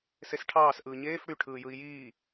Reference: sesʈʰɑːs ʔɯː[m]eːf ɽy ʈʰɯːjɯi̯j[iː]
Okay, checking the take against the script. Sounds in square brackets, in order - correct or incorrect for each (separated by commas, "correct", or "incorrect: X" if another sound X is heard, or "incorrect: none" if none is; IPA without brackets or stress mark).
incorrect: ɲ, correct